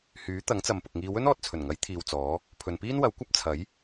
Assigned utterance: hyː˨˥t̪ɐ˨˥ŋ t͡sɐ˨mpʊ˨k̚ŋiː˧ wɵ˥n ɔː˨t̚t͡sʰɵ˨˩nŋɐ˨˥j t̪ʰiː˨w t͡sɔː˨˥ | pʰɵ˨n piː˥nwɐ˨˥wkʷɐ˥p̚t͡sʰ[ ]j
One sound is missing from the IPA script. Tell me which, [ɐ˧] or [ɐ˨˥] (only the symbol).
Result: ɐ˨˥